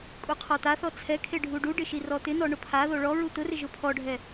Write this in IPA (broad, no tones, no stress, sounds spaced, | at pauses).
kʼ u qʰ ɔ t̪ a θ ɔ t͡sʰ ɛ kʰ e ɖʱ u ɖ u ɖ ɪ ʃ i r ɔ t̪ ɪ n ɔ ɳ ʊ pʰ a ð o ɭ ɔ ɹ u t̪ ʊ r ɪ ʒ ʊ pʰ ɔ ɖʱ ɛ